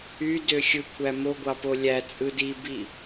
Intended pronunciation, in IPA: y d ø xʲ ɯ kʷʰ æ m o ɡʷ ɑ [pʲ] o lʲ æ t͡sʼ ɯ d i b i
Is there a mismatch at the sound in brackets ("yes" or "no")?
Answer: yes